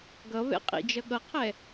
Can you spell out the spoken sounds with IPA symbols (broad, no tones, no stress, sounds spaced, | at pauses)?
ɡ ʌ β ɛ̰ qʼ ḭ d͡ʒ ʌ ɠ ʌ qʰ ɛ